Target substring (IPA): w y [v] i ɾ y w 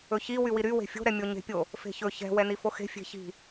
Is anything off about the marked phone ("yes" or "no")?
yes